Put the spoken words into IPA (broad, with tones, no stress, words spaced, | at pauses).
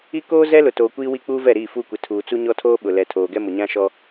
i˦ koː˦ zɛ˦lʊ˨toː˨ kʷiː˦wi˦k͡puː˦vɛ˦˨ ɾiː˦˨ fuː˦kʷɪ˨ tʰuː˨t͡su˦ɲɔ˦tʰoː˦ ɓʊ˨lɛ˨ tʰoː˨ɡɛ˦mʊ˨ ɲã˦ʃɔ˦